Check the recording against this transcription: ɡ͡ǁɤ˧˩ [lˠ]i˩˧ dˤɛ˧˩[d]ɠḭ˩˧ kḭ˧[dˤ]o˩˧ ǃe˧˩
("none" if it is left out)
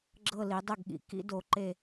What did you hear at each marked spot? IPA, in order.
l, ɡ, d

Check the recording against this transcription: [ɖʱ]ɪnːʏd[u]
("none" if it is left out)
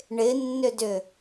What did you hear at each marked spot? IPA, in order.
ɳ, ʏ

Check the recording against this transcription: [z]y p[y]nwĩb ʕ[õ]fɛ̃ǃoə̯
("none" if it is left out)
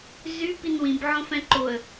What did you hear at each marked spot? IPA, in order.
z, i, õ

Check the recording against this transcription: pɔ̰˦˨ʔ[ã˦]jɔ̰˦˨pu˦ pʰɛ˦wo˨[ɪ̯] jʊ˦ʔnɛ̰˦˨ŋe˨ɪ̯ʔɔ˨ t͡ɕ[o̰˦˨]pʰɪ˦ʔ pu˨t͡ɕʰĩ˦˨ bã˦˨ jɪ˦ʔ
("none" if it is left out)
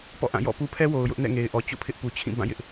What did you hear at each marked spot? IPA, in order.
ã˦˨, ʊ̯, o̰˦˨

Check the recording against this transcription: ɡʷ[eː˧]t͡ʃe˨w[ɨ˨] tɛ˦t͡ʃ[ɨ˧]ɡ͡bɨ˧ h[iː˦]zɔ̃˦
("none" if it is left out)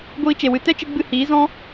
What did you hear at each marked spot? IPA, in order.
iː˧, ɨ˨, ɨ˧, iː˨˦

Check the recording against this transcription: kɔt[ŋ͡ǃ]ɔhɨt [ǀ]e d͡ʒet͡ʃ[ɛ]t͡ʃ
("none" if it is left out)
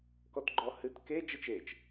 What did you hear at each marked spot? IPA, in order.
ɡ͡ǃ, k, e

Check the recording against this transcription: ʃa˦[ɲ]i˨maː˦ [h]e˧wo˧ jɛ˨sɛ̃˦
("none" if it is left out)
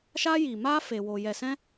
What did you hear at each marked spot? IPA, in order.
j, f

